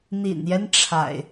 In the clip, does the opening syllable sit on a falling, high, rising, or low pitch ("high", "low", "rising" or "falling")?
low